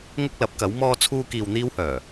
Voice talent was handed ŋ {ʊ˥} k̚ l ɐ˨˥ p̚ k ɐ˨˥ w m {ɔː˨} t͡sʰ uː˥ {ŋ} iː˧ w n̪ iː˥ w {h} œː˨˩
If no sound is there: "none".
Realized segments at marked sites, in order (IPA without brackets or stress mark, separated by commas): ʊ˥, ɔː˥, k, h